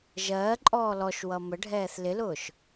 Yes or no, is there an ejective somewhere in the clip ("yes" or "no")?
yes